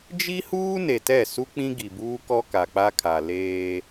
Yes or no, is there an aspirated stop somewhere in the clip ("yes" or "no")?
yes